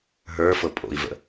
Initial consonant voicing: voiced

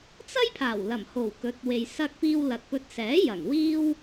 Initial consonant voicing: voiceless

